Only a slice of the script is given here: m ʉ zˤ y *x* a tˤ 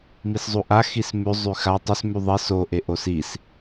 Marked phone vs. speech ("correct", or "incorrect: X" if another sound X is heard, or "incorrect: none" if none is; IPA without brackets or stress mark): correct